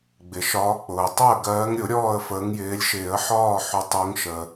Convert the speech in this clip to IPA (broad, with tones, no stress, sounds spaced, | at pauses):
ɡ͡b ɪ˩ ʃ ɒː˨˦ k͡p ʊː˩ ə̯ tˤ ʊ˥˨ ə̯ ɡ ɜː˨˦ ŋ ɾʲ ʊ˨˩˦ ɾʲ ɔː˥˨ ə̯ f əː˨˦ ŋ j ɪː˨˦ lʲ ʃ ɪː˨˩˦ ə̯ ħ ɒː˥˨ ħ ʊ˨˦ tˤ ʊː˨˦ ŋ ʃ əː˩